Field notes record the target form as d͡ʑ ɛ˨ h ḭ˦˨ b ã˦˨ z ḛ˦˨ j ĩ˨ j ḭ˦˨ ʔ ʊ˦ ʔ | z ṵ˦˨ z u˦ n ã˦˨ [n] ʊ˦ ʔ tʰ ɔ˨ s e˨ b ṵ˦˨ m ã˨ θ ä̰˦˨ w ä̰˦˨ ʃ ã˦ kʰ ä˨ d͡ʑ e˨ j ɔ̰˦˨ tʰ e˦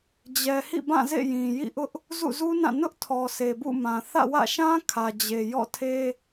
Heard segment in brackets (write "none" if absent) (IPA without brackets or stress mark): n